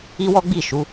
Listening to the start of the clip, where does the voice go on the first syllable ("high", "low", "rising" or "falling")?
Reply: high